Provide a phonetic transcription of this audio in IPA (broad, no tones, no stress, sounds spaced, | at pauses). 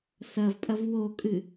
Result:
s ɐ v pʼ ɐ v w o kʼ ɨ